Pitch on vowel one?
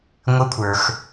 rising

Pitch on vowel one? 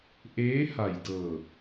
rising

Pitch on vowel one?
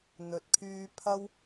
low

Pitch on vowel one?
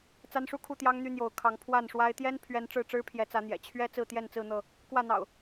high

